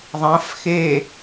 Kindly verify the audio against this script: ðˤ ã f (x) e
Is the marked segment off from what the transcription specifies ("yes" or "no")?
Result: no